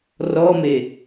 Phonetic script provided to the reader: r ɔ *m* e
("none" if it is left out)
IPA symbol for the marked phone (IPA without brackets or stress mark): m